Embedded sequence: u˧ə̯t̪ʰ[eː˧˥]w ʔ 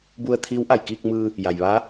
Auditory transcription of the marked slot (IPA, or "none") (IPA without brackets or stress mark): iː˧˥